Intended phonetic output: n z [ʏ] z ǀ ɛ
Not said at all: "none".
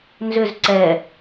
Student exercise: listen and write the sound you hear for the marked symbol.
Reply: ʏ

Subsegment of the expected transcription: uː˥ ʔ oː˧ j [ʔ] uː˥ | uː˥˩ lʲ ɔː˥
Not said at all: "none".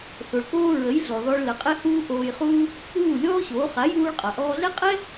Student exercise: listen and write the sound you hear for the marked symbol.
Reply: χ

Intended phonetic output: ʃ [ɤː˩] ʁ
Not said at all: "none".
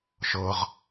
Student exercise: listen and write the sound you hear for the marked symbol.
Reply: ɤː˩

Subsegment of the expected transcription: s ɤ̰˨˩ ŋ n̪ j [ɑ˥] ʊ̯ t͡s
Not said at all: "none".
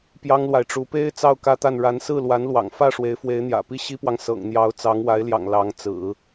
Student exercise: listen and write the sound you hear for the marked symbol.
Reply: ɑ˧˥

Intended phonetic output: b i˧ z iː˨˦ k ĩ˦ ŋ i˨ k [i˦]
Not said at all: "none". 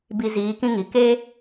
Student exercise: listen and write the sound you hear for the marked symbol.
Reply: e˦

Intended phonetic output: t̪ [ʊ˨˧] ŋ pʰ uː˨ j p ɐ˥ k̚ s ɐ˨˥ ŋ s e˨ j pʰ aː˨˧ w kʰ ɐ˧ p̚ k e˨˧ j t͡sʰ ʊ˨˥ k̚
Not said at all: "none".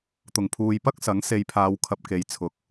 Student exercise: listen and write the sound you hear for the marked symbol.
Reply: ʊ˨˩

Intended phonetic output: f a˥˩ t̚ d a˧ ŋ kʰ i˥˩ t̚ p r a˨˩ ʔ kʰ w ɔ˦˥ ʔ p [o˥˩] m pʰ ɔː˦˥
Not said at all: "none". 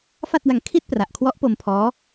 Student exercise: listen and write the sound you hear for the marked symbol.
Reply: o˧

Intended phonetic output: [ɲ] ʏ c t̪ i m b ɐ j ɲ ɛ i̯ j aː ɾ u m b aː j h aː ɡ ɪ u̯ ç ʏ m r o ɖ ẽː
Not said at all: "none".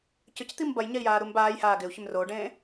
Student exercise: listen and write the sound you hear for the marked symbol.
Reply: c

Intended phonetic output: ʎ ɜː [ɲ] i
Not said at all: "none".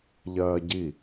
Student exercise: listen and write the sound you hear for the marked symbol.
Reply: ɟ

